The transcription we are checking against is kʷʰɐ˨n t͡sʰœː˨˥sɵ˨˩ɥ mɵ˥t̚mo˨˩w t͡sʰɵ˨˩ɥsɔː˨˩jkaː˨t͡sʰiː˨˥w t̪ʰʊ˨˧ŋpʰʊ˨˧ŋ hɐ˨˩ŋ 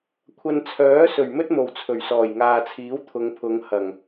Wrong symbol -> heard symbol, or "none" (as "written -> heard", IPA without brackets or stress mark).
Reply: k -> ŋ